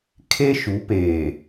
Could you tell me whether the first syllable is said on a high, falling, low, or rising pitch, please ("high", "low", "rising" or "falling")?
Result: high